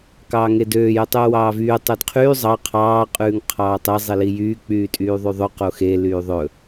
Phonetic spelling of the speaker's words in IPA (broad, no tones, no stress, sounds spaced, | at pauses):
k ɑː ŋ e d øː j ɵ tˤ yː w ɑː v yː tˤ ø d qʰ yː zˤ ɑ qʰ ɑː qʼ ʉː ŋ qʰ ɑː tˤ e zˤ i l i j yː k͡p yː tʼ yː ðˤ y ðˤ ɵ q o x e l yː ðˤ ɵ